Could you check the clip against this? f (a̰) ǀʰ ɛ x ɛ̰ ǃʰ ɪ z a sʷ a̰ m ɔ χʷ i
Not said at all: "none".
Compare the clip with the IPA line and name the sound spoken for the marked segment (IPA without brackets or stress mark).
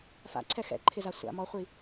a̰